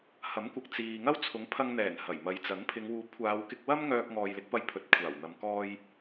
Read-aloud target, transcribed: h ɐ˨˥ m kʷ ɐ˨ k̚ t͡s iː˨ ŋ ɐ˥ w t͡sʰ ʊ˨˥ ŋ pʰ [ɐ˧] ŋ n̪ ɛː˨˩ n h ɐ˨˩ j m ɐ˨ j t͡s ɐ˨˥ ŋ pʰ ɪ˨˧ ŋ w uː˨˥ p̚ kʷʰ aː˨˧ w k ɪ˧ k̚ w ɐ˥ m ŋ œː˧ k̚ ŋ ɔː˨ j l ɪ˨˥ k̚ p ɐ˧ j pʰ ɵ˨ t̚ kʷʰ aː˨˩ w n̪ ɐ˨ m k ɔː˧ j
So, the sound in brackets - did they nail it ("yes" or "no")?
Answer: yes